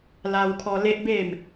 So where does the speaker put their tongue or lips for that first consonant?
tongue tip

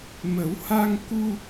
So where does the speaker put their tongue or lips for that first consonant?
lips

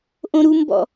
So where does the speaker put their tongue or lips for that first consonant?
throat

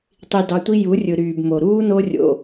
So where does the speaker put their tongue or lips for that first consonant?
tongue tip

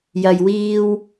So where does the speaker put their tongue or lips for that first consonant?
palate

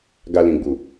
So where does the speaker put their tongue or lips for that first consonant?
velum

